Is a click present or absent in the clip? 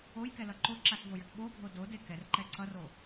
present